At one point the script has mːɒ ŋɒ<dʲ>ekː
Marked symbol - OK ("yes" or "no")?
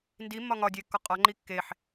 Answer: yes